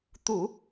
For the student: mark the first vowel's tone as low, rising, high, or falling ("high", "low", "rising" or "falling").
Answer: low